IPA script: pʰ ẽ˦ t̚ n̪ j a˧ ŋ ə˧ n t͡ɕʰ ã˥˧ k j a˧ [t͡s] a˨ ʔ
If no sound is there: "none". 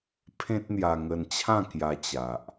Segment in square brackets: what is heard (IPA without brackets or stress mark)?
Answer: t͡ɕ